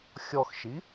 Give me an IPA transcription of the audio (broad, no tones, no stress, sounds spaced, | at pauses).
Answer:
xʲ ɔ x ʃ i